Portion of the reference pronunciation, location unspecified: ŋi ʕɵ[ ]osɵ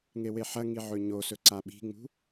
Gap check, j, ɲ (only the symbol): ɲ